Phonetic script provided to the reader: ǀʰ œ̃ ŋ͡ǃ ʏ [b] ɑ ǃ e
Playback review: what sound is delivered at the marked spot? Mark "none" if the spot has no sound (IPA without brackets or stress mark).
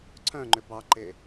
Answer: b